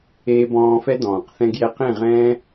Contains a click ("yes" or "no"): no